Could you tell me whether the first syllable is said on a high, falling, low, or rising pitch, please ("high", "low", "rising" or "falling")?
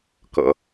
low